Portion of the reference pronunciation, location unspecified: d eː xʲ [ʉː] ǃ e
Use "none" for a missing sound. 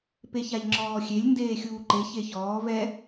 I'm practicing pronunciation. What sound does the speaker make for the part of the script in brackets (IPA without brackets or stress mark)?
uː